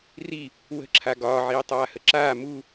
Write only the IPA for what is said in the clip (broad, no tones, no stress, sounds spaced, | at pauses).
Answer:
r i | w ə̤ ǁʰ a ɡ ɒː ʕ iː tˤ aː h ə ǁ aː m u